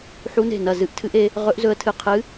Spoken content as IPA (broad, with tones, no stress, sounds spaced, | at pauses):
ħ u˦˥ n e̤˦˨ n ɐ˦˨ z ɨ˦˥ ʔ tʰ ɨ˦˥ ʔ e˦˥ | ʁ ɵ˦˥ ʔ z ɵ˦˥ ə̯ tʰ ɨ˦˨ qʰ ɨ˦˥